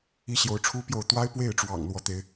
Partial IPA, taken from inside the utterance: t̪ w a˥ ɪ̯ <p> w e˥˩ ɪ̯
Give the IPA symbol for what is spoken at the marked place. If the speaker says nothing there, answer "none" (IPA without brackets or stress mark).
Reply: p